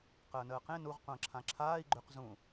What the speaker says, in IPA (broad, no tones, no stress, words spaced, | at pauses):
qəːnəːqẽ nuʁ qʷə̃ːǁʰãǁʰaːi̯ ɡ͡ǃʏq zũ